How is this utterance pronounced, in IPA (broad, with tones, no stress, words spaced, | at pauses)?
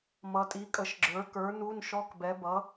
mʌ˩˧tʼi˩˥kʼə˩˥ʃɡ͡ǁə˞˩˥ kə˞˩˥ nu˧˥˧nʃɔ˧˥˧k bɛ˩˥bʌ˩˥